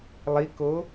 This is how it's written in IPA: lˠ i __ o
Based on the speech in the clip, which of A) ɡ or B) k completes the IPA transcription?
B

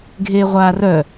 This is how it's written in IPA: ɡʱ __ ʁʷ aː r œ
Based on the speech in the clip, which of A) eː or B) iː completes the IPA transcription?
A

